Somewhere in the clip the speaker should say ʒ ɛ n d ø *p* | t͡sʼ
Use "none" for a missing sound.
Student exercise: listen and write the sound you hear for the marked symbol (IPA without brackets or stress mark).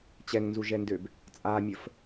b